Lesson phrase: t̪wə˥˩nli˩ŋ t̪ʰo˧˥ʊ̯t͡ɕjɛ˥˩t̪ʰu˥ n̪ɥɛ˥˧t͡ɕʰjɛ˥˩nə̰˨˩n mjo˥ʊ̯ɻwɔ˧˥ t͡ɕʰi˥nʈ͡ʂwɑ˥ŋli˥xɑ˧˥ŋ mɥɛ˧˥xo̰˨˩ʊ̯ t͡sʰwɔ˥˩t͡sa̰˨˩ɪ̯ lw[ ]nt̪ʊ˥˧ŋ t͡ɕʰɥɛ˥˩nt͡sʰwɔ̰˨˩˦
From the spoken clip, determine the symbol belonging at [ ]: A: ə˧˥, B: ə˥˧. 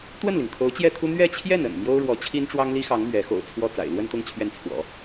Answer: B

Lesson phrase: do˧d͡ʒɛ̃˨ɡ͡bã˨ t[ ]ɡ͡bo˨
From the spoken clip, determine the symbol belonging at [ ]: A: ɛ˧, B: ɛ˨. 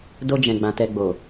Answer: B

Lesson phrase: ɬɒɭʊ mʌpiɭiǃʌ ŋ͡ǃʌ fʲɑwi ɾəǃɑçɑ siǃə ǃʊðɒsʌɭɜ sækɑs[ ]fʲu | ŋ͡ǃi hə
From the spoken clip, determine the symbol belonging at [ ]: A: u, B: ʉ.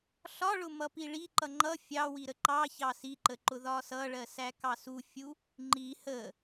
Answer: A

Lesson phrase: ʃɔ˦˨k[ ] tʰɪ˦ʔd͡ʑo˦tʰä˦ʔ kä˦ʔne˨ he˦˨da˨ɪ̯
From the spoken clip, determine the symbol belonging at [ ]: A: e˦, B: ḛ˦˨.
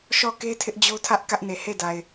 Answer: A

